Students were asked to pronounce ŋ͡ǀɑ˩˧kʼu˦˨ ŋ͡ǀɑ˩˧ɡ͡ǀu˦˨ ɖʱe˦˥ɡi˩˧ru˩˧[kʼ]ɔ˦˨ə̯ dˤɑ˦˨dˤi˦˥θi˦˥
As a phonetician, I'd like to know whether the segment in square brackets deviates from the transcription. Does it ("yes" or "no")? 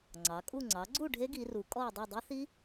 no